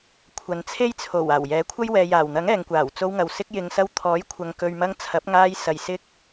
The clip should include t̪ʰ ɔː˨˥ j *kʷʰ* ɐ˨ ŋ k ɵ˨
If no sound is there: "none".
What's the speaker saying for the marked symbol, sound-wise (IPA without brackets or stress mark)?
kʷʰ